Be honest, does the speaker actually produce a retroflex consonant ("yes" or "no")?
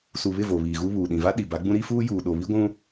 no